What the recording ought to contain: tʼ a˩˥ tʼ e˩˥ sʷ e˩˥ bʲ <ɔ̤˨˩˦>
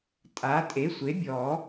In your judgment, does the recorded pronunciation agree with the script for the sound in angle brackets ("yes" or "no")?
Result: no